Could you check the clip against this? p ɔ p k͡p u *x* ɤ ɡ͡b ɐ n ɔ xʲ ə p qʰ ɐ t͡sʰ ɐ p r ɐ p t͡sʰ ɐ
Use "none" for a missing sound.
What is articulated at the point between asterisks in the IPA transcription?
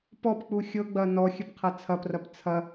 xʲ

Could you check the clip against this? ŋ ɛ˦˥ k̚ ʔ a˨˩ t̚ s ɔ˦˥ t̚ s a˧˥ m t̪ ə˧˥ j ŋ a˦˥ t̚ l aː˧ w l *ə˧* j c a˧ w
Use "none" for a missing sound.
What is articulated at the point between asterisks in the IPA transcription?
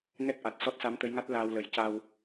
ə˨˩˦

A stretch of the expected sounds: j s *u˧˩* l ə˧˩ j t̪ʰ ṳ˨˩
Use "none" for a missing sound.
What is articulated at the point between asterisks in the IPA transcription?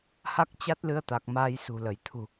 ṳ˨˩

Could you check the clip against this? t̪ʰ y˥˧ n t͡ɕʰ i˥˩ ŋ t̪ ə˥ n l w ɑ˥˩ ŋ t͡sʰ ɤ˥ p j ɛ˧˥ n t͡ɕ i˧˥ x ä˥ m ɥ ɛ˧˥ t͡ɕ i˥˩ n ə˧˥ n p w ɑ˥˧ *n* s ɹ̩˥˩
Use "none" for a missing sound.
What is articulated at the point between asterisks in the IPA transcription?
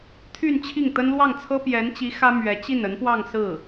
ŋ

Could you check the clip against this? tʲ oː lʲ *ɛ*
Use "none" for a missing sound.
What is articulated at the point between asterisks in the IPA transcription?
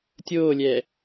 ɛ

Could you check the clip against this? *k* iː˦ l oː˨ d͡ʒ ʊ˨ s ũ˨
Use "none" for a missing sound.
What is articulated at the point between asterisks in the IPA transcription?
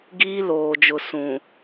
ɡ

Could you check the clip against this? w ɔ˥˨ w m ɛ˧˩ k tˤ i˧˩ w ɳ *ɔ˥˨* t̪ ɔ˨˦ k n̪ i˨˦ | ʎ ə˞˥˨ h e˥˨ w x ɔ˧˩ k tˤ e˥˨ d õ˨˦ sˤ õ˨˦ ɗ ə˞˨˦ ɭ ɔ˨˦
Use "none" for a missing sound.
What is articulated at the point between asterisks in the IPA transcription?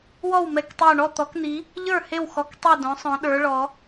ɔ˥˨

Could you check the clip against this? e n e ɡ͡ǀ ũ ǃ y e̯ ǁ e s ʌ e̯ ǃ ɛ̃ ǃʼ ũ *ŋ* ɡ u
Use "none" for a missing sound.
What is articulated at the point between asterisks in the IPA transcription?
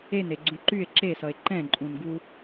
n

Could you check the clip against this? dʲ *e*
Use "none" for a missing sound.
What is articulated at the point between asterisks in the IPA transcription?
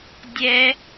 ɛ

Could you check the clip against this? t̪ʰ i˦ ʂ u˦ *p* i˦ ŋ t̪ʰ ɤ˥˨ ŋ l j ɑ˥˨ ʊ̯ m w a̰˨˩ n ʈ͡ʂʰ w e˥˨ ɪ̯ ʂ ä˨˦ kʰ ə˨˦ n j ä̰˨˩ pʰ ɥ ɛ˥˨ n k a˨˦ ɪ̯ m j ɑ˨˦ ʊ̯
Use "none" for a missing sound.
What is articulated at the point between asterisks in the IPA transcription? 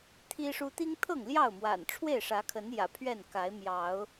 t̪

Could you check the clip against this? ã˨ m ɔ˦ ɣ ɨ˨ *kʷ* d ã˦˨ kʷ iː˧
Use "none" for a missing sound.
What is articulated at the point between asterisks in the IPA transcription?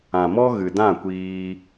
none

